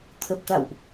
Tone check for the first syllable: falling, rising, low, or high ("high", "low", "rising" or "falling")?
low